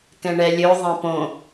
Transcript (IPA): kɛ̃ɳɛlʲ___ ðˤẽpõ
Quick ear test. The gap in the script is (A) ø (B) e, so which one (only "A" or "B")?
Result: A